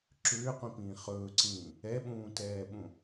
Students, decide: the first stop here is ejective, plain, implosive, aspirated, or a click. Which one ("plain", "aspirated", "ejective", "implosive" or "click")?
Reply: click